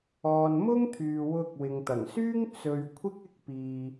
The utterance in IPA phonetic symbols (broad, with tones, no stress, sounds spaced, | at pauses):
ɔː˨ n m ʊ˥ ŋ t̪ʰ yː˨ w ʊ˧ k̚ w ɪ˨ ŋ t̪ ɐ˨˩ ŋ s yː˥ ŋ t͡s ɵ˨ ɥ kʷʰ ɪ˥ k̚ ɪ˥ k̚ p iː˧